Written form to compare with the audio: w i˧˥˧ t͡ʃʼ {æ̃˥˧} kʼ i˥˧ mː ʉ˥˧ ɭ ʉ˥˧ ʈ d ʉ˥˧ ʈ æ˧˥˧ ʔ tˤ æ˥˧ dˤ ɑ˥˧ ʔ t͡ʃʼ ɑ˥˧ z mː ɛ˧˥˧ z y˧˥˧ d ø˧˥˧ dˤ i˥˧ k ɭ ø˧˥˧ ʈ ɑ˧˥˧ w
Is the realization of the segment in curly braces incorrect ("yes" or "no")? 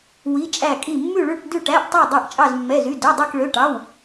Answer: yes